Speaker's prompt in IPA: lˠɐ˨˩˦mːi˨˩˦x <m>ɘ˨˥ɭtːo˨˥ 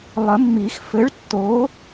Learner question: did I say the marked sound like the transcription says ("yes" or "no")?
no